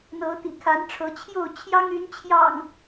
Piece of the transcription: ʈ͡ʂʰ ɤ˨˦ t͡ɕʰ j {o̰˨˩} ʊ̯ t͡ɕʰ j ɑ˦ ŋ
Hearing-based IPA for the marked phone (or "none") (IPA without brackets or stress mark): o˥˨